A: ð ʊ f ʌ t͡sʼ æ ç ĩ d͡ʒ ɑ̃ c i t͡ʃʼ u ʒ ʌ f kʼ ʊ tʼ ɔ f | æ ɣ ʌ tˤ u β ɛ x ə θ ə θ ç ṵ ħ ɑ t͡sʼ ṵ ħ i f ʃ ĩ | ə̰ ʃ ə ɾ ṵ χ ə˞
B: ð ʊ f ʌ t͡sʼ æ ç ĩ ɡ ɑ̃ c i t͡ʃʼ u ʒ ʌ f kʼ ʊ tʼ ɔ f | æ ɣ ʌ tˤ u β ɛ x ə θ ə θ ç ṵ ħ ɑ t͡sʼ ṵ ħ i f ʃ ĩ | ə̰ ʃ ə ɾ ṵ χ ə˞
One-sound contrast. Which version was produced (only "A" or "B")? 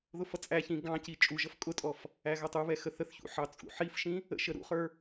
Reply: B